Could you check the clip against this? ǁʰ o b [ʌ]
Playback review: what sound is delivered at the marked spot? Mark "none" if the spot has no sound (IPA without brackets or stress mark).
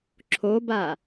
a